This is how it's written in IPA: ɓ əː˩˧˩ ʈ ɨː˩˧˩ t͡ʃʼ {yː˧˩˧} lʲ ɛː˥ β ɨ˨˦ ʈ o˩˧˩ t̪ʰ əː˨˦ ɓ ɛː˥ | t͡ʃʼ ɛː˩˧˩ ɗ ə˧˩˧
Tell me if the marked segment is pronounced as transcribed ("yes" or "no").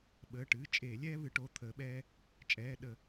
no